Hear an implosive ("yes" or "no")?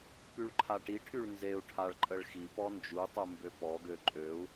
no